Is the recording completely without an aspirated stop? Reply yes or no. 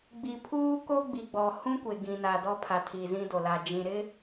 no